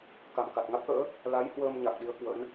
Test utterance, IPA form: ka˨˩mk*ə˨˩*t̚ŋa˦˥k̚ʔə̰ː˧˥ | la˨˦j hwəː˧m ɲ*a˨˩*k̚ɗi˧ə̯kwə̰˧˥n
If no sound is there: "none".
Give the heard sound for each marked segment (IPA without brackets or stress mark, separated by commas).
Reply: a˨˩, a˨˩